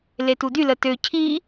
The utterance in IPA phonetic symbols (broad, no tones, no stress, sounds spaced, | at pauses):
l e t u d y l ə t ø cʰ i